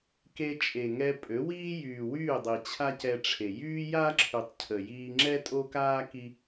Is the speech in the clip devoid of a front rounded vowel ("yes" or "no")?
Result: no